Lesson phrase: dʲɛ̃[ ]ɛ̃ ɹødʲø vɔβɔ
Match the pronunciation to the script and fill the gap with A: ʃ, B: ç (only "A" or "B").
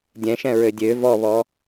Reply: A